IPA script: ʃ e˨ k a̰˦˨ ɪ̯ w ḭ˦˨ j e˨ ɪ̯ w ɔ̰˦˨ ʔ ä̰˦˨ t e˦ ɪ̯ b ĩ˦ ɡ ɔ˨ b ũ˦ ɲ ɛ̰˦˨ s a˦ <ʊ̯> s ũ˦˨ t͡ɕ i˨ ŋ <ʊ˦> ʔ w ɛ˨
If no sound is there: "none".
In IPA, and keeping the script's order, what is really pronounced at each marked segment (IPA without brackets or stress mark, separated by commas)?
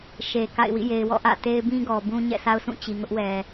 ʊ̯, ʊ˦